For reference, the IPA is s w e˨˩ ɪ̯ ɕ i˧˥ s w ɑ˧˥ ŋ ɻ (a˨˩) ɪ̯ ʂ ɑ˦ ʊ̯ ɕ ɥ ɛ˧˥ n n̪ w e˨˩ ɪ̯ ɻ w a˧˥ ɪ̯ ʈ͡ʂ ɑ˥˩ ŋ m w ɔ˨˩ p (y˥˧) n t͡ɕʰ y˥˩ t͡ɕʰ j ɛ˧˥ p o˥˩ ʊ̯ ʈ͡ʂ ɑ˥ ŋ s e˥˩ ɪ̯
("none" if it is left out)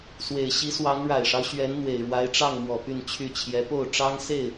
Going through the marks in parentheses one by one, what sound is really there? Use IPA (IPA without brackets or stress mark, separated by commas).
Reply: a˨˩, y˥˧